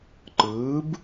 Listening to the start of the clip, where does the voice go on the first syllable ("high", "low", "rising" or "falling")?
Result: rising